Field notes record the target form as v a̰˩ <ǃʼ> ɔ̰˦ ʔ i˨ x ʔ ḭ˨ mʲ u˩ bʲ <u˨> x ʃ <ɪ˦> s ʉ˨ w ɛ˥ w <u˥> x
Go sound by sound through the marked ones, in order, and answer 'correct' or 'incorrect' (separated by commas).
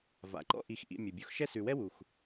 incorrect, correct, incorrect, incorrect